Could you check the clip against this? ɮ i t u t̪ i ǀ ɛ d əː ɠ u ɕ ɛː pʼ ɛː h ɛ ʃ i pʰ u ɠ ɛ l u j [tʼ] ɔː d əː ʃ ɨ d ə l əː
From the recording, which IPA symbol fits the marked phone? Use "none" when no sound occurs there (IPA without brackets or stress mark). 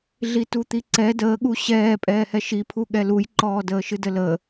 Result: ǃ